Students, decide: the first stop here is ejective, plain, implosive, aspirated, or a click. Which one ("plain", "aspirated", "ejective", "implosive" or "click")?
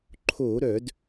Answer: click